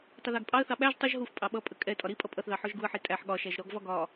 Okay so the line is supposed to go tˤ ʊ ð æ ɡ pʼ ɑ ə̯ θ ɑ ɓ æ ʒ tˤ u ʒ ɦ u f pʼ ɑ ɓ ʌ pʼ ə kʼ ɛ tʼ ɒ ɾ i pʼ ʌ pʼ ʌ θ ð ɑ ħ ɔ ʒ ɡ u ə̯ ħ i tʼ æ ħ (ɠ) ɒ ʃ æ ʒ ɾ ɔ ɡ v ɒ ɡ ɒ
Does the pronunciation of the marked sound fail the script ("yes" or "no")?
no